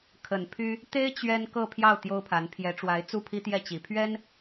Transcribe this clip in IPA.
kʰ ə˨˩ n pʰ y˥ | t̪ e˥ ɪ̯ t͡ɕ ɥ ɛ˥ n k ɤ˥˧ pʰ j ɑ˥˩ ʊ̯ t̪ j o˥ ʊ̯ pʰ a˧˥ n pʰ j ɛ˧˥ ʈ͡ʂ w a˧˥ ɪ̯ t͡s u˥˩ pʰ i˥ t̪ j ɛ˥˩ t͡ɕ i˨˩ pʰ ɥ ɛ˥ n

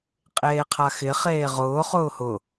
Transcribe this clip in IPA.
qʼ eː qʰ a x ɪ χ eː ʁ ʊː χ ʊː h ʊ

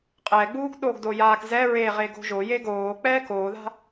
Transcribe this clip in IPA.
qʼ ɛː ɡ͡b uː ɡ ɗ o ɡ d o j aː k z ɛ ɹ e ʁ e ɡ o̤ ʒ o j e ɡ oː k͡p ɛː k oː ð a̤

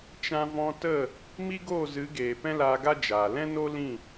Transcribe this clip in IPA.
t͡ʃ ã˧ v ɔ̃˧ t ə˦˨ | m i˦ ɡ oː˦˨ z ɨ˨˦ ɡ eː˨ p ɛ̃˦ l aː˧ ɡ a˦ d͡ʒ aː˨ l ɛ̃˦ n o˦ l ĩ˦˨

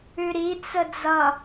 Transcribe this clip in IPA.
ʉ ɾ i t͡s ə d͡z ʌ

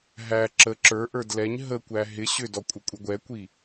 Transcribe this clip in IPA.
ɦ æ ǁ ə ǁ ə˞ ʔ ə˞ d l ɛ ɲ ɦ ə kʷ æ ɦ ɪ ɕ ʏ d ɔ kʷʼ ə kʷʼ ɪ ɡʷ ɛ kʷ i

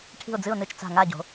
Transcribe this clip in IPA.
ʈʰ i̤˨˩ ʊ̯ d͡z ɨ˨˩ ʊ̯ n ɨ˨˩ t͡ʃ t͡s a̤˨˩ ŋ a˦˨ ɟ o̤˩˧

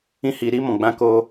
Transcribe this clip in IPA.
ĩ˧ h iː˨ ɾ iː˦ m ɔ̃˨ ɡ͡b ã˦ k o˧

